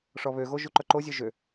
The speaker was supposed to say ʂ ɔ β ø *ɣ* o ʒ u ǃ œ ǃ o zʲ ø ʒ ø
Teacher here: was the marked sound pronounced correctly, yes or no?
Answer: yes